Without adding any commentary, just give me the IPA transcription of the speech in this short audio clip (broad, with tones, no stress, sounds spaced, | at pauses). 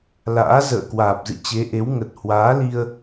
l a̰ː˧˥ z ə̰ː˧˨ k w aː˨˩ p̚ z ɨ̰˧˨ t͡ɕ e˨˦ ʔ e˨˦ w ŋ ə˨˩ t̚ h w aː˨˦ l i˧ ə̯